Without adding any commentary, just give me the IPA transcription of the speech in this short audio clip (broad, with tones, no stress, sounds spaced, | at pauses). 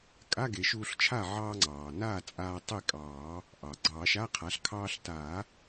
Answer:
kʼ a˧˥˧ ɡ e˨˩˦ ʃ uː˧ ɬ t͡ʃʰ a˥˩ ʕ ɑː˧ ŋ͡ǀ ɑː˩ n aː˥˩ t͡sʼ aː˧ tˤ e˥˩ kʼ ɑː˨˩˦ | ʔ ɑ˩ ɡ͡ǀ ɑː˨˩˦ ʃ a˧˥˧ qʰ a˩˥ ɬ kʰ ɑː˧ ɬ t aː˨˩˦